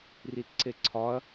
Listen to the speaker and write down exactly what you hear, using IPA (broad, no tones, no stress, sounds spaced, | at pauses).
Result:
r i t ǀ e ǀʰ ɒ ɐ̯